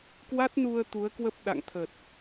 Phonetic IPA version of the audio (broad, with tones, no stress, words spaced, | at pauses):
kwa˦˥t̚nu˧ə̯ t̪u˨˦ə̯kwə˦˥p̚ ɗa̰˧˨ŋt̪ʰə˨˩t̚